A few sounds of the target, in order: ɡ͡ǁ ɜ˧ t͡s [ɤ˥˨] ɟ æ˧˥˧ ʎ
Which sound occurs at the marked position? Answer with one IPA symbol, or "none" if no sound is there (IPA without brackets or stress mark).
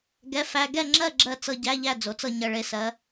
ɤ˧